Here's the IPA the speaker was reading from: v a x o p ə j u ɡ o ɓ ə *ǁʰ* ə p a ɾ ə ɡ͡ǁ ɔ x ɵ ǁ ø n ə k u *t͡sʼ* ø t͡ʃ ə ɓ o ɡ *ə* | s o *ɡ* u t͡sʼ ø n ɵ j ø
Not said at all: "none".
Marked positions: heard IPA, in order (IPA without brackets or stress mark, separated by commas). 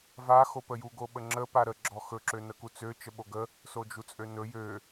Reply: ŋ͡ǁ, t͡s, ə, d͡ʒ